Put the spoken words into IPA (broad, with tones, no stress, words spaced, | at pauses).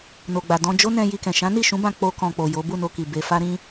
no˨ɡ͡ba˨dɔ̃˧ d͡ʒo˦nɛ̃˧ ji˧kɛ̃˨ ʃã˨˦ni˦˨ʃũ˨˦bã˧ k͡po˦kɔ̃˧ k͡po˨jo˨˦ bu˦˨no˧ki˨ be˧ fa˦ɾĩ˦